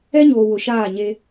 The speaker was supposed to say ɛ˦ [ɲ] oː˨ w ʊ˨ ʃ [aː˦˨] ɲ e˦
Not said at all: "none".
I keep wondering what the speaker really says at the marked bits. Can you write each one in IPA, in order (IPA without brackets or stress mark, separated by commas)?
ɲ, aː˦˨